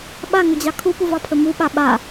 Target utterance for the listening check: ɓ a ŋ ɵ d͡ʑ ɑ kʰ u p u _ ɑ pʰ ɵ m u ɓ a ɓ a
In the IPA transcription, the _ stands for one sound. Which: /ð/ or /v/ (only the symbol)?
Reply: v